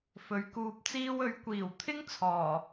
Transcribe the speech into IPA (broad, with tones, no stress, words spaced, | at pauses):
fɵ˨˧ɥkuː˧p̚t͡siː˥w ɵ˨˥ɥkʷiː˨˩wt̪ʰɪ˥ŋ t͡sʰɔː˨˩